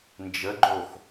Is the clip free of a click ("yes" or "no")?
no